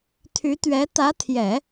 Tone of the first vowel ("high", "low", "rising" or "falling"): rising